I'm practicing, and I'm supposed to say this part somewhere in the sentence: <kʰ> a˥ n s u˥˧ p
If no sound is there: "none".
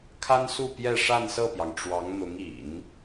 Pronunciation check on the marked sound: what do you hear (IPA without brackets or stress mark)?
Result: kʰ